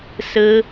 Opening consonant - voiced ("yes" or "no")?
no